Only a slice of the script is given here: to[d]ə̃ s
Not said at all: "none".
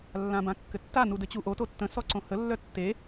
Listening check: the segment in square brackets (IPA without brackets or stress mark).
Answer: tː